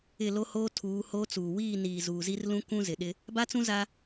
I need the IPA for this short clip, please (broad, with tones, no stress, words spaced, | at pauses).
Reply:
ɪ˦˨lo˦hoː˦ tʰuː˨˦hoː˦t͡suː˨ wiː˦˨niː˨ zuː˨zi˦r lũ˦kũ˦ zɪ˨ɗɪ˦ | ba˦t͡sũ˦ za˦